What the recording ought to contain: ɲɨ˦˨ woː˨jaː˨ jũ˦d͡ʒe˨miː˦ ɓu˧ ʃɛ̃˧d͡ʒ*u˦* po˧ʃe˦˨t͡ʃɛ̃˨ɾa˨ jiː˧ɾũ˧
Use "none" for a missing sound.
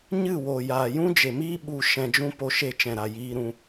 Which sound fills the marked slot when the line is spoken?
ũ˦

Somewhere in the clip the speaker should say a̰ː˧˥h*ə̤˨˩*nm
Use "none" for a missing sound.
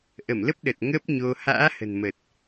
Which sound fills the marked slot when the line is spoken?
ə̤˨˩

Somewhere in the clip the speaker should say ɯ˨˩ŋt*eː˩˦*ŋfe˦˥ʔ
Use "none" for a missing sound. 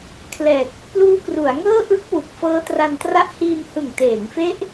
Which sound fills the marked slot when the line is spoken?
eː˩˦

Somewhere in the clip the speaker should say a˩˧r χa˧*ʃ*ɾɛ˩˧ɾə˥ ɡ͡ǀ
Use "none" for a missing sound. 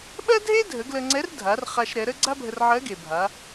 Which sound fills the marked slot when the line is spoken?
ʃ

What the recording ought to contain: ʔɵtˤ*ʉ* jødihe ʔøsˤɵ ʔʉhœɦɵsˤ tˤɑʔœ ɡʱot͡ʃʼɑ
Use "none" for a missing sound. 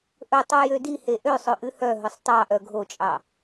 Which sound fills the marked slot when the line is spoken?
u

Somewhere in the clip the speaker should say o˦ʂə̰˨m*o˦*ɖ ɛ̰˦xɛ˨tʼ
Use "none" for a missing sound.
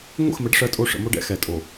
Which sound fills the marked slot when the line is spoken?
o˦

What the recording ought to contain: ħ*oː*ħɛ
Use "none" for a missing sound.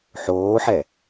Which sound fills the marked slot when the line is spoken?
oː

